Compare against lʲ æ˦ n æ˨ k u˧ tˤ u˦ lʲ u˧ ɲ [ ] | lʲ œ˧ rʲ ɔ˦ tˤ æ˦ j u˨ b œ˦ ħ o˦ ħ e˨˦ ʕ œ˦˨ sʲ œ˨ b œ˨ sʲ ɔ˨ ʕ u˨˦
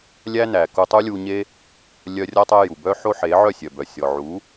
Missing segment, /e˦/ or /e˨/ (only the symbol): e˦